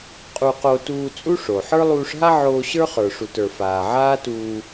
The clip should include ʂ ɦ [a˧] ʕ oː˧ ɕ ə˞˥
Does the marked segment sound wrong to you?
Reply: yes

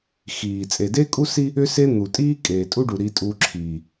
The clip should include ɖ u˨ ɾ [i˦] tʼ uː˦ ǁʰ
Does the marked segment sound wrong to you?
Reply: no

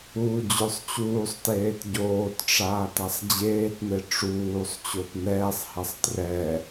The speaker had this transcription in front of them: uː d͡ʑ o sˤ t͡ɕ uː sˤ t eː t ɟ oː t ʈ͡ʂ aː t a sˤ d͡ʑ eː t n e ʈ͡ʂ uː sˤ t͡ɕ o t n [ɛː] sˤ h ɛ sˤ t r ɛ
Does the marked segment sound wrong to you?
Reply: no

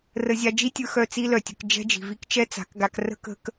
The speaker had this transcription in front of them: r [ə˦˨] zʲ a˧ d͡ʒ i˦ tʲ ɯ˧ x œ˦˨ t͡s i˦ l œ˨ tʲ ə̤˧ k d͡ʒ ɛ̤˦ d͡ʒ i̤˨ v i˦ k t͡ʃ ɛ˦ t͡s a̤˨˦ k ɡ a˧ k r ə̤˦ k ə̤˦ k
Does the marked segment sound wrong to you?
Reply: yes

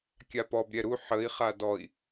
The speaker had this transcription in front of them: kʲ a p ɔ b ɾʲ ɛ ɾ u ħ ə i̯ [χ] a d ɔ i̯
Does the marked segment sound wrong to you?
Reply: no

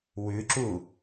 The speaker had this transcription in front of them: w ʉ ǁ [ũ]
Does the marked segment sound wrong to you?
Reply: yes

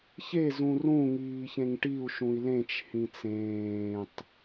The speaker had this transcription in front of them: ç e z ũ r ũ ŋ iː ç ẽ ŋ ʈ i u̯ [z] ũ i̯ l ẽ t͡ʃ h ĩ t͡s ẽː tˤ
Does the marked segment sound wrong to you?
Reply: yes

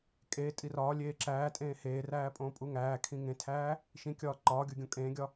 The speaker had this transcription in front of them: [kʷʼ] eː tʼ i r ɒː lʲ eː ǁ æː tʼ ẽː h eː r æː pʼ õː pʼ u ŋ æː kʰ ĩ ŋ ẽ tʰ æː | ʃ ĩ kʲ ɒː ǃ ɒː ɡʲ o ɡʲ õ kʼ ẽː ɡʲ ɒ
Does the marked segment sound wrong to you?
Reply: yes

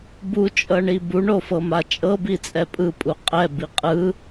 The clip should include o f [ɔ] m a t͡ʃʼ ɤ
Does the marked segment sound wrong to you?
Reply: yes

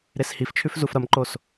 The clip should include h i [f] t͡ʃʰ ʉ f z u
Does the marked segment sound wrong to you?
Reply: no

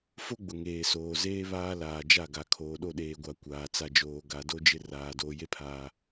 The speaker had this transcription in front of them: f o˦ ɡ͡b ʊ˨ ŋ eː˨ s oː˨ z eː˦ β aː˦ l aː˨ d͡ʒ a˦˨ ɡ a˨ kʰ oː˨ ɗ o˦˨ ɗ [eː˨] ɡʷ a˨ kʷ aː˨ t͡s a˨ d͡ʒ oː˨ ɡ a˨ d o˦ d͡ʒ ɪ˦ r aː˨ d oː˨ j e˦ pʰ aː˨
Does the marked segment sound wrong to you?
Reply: no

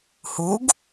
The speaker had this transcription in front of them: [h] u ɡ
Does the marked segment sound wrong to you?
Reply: no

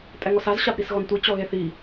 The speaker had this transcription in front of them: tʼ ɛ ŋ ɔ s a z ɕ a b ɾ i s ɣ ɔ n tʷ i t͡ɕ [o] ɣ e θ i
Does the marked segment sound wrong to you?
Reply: yes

